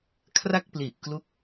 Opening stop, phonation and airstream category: aspirated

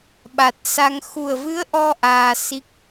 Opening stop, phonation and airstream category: implosive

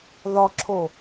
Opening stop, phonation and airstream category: click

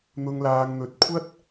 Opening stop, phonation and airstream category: plain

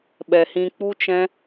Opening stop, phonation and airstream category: implosive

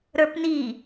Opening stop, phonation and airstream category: plain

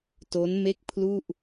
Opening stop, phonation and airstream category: plain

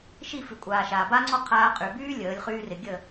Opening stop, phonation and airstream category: ejective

